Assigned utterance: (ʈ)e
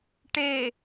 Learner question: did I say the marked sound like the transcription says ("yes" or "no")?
yes